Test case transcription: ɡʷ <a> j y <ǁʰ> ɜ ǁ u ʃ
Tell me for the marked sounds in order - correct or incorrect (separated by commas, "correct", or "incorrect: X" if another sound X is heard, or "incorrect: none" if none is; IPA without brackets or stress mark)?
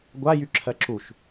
correct, correct